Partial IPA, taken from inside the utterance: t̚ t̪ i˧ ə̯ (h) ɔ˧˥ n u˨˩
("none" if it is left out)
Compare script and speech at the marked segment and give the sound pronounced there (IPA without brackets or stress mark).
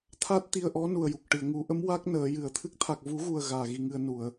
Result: ʔ